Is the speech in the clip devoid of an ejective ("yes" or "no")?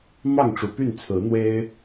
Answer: yes